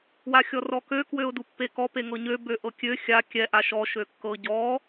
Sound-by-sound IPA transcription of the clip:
waxʲɔrɔkø kwøʊ̯dupːekɔ peŋɤɲø bøʔɤkʲø xʲa kʲɛ ʔaʃɔ ʃøkːɤ ɟɔ

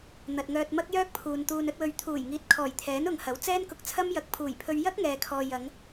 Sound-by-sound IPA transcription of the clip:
n̪ɐ˨t̚ŋœː˧t̚ mɐ˥k̚jœː˥k̚pʰuː˨n t̪uː˨nɵ˧t̚wɵ˨ɥ t̪ʰuː˨˩jŋiː˨t̚kʰɔː˨˩j t̪ʰɛː˨˥nʊ˨ŋhɐ˨˥w t͡sɛː˥nkʊ˧k̚t͡sʰɐ˥mjɐ˨˥k̚ pʰuː˨˩jpʰɵ˧ɥ jɐ˥k̚ŋɛː˨kʰɔː˨ jɐ˨˧ŋ

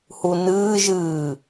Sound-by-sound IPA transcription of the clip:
hunɨːʒ ɨː

